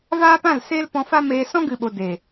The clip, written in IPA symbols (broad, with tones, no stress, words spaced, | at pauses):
vaː˦pã˦˨lseː˦l pɔ̃˧fa˦meː˧ sɔ̃˦ɡɨ˨ɓo˨ de˨